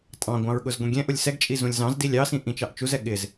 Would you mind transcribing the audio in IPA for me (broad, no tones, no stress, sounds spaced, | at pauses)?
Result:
tʼ ɑ̃ ɡʷ ɑ̃ ɹ ɠ ʊ z ɡʷ ĩ ɡʲ ɛ̃ ʔ ʊ lʲ s ɛ ɡ t͡ʃʼ i z ũ lʲ z ɑ̃ z d i lʲ ɑ s ĩ ʔ ĩ t͡ʃ ɑ ʔ t͡ʃ u z ɛ ɠ ɪ z